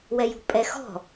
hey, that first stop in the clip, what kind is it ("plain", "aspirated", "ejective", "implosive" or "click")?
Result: ejective